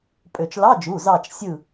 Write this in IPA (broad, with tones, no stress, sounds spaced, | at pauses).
pʼ ø˧˩˧ t͡ʃ l ɑ˧˥˧ d͡ʒ u˩˧˩ z ɑ˦˨ t͡ʃ sʲ ɯ˦˨